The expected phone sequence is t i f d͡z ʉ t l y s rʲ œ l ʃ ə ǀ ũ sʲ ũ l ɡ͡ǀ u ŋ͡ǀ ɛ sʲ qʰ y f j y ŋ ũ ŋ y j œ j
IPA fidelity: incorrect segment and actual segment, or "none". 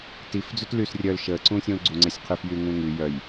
none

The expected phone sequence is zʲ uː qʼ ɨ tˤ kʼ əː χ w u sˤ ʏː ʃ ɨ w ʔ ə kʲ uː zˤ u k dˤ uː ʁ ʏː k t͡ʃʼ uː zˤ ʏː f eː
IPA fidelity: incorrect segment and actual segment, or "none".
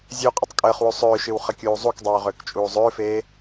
ʔ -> χ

